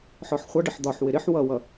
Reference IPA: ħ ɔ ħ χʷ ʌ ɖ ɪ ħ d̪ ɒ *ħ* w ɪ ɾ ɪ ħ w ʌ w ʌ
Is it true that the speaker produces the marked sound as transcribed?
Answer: yes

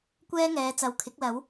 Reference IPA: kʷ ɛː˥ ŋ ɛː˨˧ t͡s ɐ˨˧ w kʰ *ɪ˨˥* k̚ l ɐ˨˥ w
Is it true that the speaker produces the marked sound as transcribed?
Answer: yes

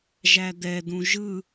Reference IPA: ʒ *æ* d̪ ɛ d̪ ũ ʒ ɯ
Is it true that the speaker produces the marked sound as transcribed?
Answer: yes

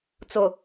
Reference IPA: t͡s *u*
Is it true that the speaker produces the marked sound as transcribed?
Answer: no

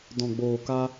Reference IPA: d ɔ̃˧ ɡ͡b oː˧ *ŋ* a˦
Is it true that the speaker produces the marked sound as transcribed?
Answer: no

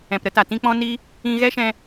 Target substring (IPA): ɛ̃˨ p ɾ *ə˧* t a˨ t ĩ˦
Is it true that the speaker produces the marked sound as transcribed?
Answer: yes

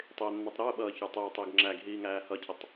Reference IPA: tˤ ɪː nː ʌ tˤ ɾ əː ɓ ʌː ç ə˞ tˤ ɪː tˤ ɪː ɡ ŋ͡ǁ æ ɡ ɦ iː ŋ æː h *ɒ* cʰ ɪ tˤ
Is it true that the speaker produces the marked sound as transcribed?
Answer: no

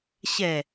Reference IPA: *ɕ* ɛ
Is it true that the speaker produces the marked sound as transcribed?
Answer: yes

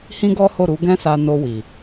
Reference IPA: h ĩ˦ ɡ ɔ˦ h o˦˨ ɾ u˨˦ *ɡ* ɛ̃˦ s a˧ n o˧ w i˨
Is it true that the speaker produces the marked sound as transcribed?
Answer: yes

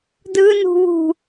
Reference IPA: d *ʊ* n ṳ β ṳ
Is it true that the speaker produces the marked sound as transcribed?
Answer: no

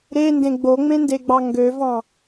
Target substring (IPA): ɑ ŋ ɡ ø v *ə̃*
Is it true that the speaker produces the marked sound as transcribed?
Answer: no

